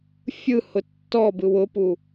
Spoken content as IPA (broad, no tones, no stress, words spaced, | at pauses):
fʲɯhʊ tːɔ bɯwʊpu